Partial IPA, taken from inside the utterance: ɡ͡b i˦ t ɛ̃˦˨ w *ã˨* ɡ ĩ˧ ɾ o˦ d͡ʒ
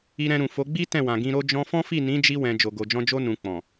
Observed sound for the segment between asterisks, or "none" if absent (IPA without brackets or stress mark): ã˨